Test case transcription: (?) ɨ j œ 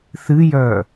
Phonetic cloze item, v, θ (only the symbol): θ